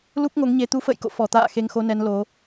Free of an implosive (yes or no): yes